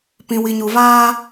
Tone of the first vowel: low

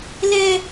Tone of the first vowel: high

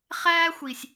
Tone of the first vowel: high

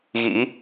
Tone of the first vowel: rising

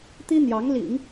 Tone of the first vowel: high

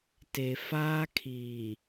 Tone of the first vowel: low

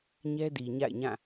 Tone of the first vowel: high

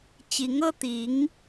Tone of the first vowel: rising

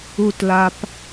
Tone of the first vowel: low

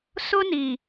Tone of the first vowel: high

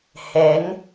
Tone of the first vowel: rising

